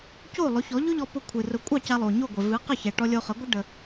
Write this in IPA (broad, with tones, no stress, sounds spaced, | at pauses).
c o˥˩ lˠ ʊ˩˥ ç ɔ˩˥ ʎ ʊ˥ ʎ ɔ˧ p ʊ˧ kʷʰ ɨ˩ r ʊ˩˥ kʷʼ ɑ˥˩ c a˧ lˠ o˩ ɲ o˥˩ ɡʷ ɛ˩ v ɨ˩˥ q ə˥˩ ç ɛ˩ ʈ ɔ˧ lʲ o˧ χ ə˩˥ ɡʷ ə˥ ɖ ə˩